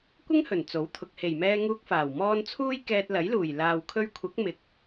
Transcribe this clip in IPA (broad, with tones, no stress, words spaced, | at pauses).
kʷɪ˥ŋhɵ˨˩n t͡so˨˥wt̪ʰʊ˨k̚ he˨˩jmɛː˧ ŋuː˧k̚faː˨˩w mɔː˧n t͡sʰuː˥jkɛː˧t̚ lɐ˨˥jluː˨˩j laː˨wkʰɵ˧ɥkʷʰɐ˨˥k̚ mɪ˨k̚